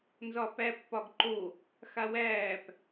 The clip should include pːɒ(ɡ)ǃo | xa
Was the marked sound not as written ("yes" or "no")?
no